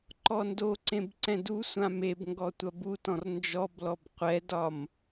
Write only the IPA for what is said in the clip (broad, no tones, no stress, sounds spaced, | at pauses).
ǃ ɔ n d o ǀ ẽ b ǀ ɛ̃ d u sʷ ã m e b ŋ ɡ ɔ tʷ ɐ b u t ɔ̃ r n d͡ʒ ɔ b l ɔ b qʷ ɛ d ɒ m